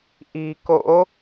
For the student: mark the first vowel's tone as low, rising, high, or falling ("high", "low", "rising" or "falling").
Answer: low